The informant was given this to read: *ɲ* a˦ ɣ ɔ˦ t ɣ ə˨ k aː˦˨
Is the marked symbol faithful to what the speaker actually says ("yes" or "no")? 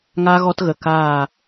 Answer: no